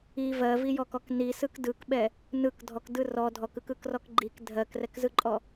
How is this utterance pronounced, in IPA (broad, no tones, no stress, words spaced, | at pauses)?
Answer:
i vɜvijɔkɔk nisɯk dɯkɓɛ | nɯk dʱɔkdɯ rɔ dʱɔkɯkɯkrɔk ɡ͡ǃik dʱɜkrɛkzɯǃʼɔ